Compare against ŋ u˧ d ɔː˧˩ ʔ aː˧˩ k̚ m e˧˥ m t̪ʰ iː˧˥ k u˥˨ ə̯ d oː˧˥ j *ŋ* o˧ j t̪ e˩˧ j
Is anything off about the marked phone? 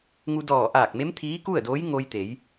no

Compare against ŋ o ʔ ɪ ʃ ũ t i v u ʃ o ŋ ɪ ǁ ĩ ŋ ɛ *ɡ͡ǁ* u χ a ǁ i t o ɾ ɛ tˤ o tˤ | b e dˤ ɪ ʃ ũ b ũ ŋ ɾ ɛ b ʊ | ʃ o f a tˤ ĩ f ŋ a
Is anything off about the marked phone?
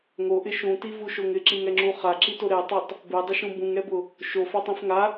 yes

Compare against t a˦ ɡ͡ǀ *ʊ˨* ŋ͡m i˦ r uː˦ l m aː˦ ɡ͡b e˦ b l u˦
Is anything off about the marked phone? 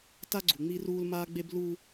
yes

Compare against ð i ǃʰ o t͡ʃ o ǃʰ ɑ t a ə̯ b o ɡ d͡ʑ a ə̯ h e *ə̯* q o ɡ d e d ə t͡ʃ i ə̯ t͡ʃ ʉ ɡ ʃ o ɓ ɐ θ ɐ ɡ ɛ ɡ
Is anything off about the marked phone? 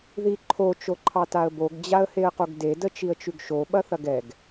no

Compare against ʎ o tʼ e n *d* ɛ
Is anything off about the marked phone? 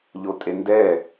no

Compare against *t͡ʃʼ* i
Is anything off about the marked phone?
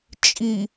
no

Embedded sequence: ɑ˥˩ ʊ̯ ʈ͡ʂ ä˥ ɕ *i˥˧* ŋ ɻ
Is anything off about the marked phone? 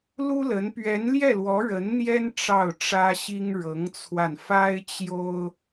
yes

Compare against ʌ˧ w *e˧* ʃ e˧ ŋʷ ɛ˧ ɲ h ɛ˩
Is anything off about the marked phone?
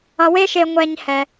yes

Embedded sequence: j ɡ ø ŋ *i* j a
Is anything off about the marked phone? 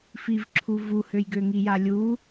no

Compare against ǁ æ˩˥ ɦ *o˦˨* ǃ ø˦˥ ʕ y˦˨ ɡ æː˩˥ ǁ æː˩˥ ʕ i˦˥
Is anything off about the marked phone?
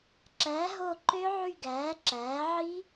no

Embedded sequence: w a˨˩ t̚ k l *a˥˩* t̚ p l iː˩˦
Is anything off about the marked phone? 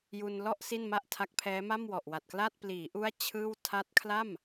no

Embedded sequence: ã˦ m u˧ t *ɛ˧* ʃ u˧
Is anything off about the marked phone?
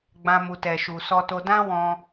no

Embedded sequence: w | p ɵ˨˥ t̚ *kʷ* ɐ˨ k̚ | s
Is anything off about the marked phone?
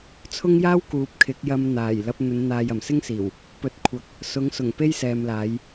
yes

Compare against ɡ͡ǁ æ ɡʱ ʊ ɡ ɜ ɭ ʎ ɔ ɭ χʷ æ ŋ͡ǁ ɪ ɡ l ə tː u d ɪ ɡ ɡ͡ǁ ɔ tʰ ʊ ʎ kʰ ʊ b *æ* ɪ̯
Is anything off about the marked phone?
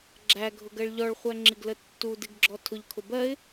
yes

